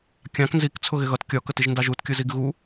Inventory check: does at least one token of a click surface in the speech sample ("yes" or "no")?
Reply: no